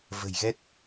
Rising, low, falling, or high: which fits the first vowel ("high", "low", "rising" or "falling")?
low